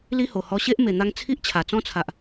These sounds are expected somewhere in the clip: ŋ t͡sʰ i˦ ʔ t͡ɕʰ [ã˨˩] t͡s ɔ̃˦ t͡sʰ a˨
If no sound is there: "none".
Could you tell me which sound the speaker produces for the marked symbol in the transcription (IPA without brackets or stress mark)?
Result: a˨˩